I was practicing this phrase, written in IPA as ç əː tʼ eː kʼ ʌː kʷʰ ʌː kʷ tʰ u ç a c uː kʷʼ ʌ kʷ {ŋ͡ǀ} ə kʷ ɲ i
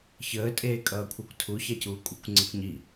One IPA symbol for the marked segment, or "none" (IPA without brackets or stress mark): ŋ͡ǀ